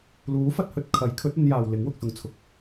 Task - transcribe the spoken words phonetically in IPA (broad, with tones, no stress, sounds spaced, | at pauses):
l uː˨˥ f ɐ˧ t̚ h ɵ˨ t̚ kʰ ɐ˨˥ j kʰ ɵ˨˥ t̚ ɐ˨˧ n j aː˨ w l ɪ˨˥ ŋ w ʊ˨ k̚ s ʊ˨ ŋ t͡sʰ ʊ˨ k̚